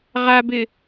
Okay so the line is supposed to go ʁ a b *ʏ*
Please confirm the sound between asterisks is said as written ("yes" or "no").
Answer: no